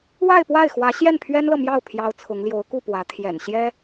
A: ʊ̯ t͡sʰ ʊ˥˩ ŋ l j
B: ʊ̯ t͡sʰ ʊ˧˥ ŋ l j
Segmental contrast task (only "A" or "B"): B